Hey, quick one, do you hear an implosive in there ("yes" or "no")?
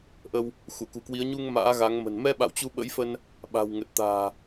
yes